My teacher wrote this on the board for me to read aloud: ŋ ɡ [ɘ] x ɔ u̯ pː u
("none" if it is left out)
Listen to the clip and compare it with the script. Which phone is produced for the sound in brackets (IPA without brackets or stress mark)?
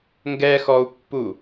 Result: ɛ